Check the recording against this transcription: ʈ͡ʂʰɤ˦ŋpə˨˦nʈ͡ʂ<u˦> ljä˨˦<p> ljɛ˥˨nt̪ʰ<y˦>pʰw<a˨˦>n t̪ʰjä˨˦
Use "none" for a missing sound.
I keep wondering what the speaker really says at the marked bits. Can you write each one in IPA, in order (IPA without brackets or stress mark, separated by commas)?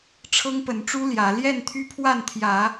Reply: u˦, none, y˦, a˥˨